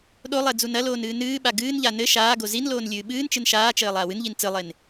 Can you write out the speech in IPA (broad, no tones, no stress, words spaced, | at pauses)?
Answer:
ɗolˠɛ d͡zunɐloːn ɨːnɨːɓa ɡɨːnʎa nɘ ʃaːɡo zinloːn lʲɨːɓɨːnt͡ʃɨn ʃaːt͡ʃɘː lˠaːwɨnʎin t͡sɨlˠen